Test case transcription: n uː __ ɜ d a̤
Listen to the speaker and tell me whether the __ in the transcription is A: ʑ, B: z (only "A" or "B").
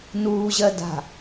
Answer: A